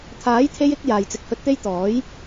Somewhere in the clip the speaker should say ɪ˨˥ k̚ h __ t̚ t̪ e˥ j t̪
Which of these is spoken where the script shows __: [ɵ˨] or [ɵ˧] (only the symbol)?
ɵ˧